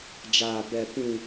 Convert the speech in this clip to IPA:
d͡ʒ aː˨ b ɛ˨ p ĩ˨

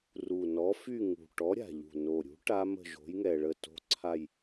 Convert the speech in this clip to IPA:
r u˨˩ n ɔ˨˥ f y˥˧ ŋ ṳ˨˩ ʈ ɔ˨˥ ɾʲ a̤˨˩ ʎ ṳ˨˩ n o˨˩ ɾʲ ṳ˨˥ ʈ a˦˥ m ə̤˥˧ ʒ o̤˨˥ j ŋ ɛ˨˩ ɭ ə˥˩ t o̤˥˧ ǀʰ a˥˧ j

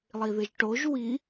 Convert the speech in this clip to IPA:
lˠ i ð ɨ ʒ ʈ o ʒ w i

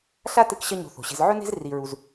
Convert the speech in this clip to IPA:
ɬ a˦ t ɨ˧ k ɕ ɐ˦ ɲ o̤˧ θ o̤˨ ɕ e̤˧ z ʕ ɵ˦ n e̤˦ z r i˧ ɹ u˧ z

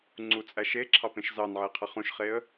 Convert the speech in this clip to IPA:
ŋ͡ǀ u t͡sʼ æ ʃ e ǁʰ ɑ p ẽ ʃ z ɑ n ʕ e qʰ ɯ χ ũ ʃ χ e ə̯

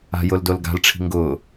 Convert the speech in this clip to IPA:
a̤ j ʊ l d o l ɡ a̤ l ʈ͡ʂʰ i̤ ŋ ɡ ʊː

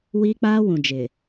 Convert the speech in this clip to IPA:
w iː˦ k͡p aː˦ w ũ˨ d͡ʒ ɪ˨

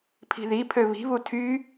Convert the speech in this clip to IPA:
pʰ i̤ ð i pʰ ø β i̤ β u tʰ y

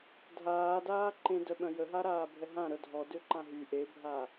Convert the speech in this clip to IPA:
dʱ aː d aː ǃ ẽ d œ ɓ œ̃ j ə ɦ a ɾ aː bʱ ɛ ɦ ã ɾ œ dʱ ɔ d ø ǃ ã ɦ y ʔ e bʱ a

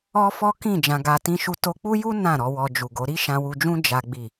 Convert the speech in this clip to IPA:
ɔ˦ f ɔ˦ k ĩ˦˨ d͡ʒ ã˧ ɡ a˧ t ĩ˦ ʃ u˦ t o˧ k͡p u˦ j u˦ n ã˦˨ ɾ ɔ˧ w ɔ˧ d͡ʒ u˨ ɡ o˨˦ ɾ i˦ ʃ ã˧ w u˧ d͡ʒ ũ˦ d͡ʒ a˦ ɡ͡b i˦˨

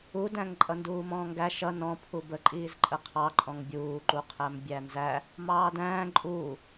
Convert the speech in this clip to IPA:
u d æ̃ ŋ ǃʼ ʌ n d uː m ɔ̃ː ŋ ɡ æ ʃ ʌ n ɔ̃ pʰ u b ə ǃʼ iː z ǃʼ ə qʰ ɑ ǃʼ ɔ̃ ŋ bʲ uː ǃ u qʰ æ m bʲ æ n z æ | m ɑː d æ̃ː ǃʼ uː

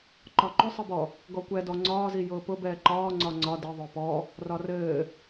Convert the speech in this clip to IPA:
ǃ ɒ ǃ ʊ sˤ ɯ b ɔ | ɡ ɔ kʷ ɛ d ɔ ŋ͡ǀ ɒː z i j ʊː p ʊ b ɛː ǃ ɒː ŋ͡ǀ ɒ ŋ͡ǀ ɒ d ɘ ðˤ ʊː p ɔ | r ɒ r ɘː

